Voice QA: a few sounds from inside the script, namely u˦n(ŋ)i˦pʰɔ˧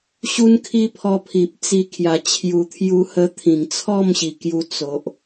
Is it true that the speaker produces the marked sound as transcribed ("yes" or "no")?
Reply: no